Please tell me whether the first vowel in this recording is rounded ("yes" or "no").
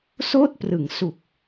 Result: yes